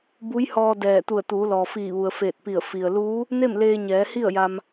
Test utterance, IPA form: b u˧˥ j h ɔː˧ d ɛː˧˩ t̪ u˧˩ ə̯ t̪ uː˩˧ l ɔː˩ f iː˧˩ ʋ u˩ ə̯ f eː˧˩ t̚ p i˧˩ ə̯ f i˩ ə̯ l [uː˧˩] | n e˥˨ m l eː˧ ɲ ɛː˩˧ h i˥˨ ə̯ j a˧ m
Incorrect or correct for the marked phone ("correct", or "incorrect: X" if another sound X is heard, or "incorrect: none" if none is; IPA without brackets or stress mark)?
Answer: incorrect: uː˧˥